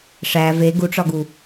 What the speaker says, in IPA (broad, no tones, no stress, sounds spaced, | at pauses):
ʂ æ v e ɡ u ʈ͡ʂ ɒ ɡ u